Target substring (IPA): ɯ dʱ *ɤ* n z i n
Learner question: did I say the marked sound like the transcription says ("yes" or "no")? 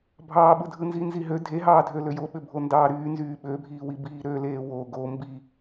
no